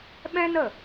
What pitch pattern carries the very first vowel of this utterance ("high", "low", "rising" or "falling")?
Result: high